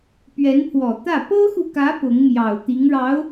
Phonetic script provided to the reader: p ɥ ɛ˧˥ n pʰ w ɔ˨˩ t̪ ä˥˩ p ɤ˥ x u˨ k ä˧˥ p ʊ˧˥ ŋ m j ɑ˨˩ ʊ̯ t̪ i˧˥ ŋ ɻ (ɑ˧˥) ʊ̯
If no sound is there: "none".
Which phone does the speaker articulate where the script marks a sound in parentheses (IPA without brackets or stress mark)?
ɑ˧˥